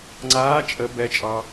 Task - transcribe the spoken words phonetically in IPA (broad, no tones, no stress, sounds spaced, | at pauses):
ŋ͡ǀ aː t͡ʃʼ ə b ɛ t͡ʃʼ ɑ